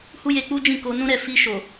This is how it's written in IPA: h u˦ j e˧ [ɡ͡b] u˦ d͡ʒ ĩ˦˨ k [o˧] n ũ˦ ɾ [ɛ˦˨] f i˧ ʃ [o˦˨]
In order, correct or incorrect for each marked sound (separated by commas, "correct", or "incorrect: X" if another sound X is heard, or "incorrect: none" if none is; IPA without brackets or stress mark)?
incorrect: k͡p, correct, correct, incorrect: o˨